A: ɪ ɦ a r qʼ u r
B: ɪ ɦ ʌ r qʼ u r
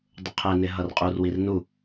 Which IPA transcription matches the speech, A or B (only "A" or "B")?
B